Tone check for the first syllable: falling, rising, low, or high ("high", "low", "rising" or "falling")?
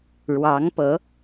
rising